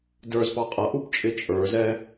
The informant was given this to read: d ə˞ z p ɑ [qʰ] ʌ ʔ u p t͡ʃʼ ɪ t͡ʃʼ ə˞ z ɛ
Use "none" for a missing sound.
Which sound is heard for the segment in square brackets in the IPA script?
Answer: qʼ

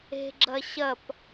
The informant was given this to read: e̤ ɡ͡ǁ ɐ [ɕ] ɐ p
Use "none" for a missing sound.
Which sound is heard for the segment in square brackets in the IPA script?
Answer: ɕ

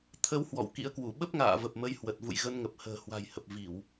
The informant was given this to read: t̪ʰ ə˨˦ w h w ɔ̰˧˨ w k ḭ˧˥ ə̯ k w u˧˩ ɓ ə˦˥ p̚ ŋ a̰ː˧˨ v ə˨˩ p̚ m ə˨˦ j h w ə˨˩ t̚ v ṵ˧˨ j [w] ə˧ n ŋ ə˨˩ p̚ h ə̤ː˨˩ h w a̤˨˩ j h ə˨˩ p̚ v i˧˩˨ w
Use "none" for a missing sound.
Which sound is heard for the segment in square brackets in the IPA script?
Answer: ɣ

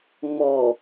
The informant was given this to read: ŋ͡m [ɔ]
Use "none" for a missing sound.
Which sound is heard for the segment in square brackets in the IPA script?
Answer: ɔ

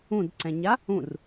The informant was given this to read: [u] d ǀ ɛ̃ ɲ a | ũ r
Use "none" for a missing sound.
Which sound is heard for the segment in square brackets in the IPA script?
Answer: ũ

